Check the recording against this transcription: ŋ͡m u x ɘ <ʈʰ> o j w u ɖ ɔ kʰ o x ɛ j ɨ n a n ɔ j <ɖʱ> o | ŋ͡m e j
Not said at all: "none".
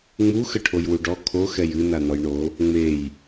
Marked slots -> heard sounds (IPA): ʈʰ, ɳ

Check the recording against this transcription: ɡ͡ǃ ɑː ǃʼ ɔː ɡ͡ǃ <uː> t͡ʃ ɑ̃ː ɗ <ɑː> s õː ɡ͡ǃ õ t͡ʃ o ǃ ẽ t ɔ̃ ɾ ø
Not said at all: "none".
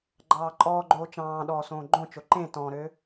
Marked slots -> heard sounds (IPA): oː, ɔː

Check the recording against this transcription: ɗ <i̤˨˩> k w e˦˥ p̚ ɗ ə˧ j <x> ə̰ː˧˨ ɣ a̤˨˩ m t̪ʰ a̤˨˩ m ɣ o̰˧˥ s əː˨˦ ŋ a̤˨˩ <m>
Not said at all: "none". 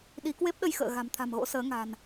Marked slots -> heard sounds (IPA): i˨˦, x, n

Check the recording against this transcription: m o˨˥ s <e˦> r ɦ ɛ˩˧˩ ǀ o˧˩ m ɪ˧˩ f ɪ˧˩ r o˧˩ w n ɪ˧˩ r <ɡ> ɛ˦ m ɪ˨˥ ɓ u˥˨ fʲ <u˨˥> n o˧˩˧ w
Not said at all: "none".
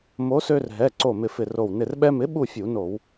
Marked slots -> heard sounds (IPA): ø˦, ɓ, u˧˩˧

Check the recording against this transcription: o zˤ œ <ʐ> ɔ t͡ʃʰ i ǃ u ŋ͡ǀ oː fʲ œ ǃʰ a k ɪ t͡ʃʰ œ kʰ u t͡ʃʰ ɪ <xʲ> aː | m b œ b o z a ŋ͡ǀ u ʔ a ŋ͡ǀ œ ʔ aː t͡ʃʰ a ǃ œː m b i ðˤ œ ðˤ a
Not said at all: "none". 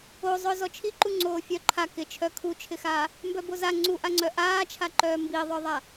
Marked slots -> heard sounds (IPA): z, x

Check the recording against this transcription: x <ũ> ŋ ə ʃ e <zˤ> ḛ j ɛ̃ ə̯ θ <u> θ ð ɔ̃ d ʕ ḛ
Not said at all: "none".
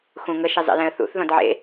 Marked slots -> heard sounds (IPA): ũ, zˤ, ṵ

